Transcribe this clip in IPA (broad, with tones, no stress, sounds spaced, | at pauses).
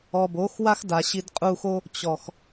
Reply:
ɔ˨ b oː˨˦ x w a˦ x d a˨ ɕ i˧ d qʼ uː˧ x o˦ | t͡ɕ ɔ˨ x